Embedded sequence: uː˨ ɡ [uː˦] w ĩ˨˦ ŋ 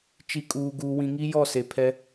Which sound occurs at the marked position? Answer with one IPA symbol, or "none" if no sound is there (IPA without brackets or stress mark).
uː˨